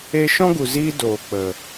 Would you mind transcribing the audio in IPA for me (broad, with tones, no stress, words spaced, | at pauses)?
e˧ʃɔ̃˦ɡu˨ziː˧ doː˨k͡pə˨